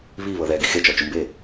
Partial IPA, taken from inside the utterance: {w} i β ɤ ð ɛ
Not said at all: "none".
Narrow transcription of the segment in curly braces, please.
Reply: β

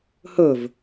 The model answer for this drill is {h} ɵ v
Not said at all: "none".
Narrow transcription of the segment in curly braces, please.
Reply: h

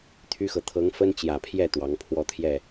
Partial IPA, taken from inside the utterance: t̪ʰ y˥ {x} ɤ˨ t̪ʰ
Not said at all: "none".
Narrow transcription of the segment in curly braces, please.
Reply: x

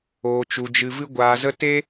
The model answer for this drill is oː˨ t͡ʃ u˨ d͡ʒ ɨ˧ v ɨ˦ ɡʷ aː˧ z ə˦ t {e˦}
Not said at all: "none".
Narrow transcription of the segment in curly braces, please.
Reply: e˦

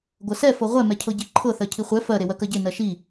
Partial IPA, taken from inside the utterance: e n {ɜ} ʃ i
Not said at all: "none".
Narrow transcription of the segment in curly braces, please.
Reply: ɜ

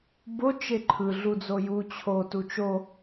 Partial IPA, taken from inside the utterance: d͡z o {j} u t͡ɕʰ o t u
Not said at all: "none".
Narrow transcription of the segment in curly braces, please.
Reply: j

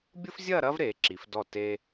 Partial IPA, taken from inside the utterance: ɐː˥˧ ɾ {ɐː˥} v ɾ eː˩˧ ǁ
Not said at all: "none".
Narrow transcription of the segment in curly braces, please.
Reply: ɐː˥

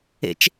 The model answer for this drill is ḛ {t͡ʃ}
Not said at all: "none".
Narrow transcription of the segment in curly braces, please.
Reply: t͡ʃ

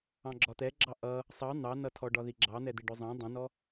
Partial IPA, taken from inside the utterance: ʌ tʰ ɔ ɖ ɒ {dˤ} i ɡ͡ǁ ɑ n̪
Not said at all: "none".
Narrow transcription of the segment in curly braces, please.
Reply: ð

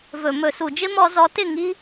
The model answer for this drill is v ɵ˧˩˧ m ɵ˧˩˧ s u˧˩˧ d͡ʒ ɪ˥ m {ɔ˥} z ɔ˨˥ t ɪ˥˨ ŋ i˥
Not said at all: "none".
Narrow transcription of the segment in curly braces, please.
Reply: ɔ˧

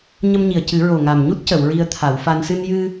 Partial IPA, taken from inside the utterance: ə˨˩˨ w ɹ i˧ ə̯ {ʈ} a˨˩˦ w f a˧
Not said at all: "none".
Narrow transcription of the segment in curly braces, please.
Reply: t̪ʰ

